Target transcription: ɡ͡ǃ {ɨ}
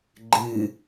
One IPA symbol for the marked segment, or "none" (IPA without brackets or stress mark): ɨ